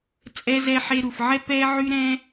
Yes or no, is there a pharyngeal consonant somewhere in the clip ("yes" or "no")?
yes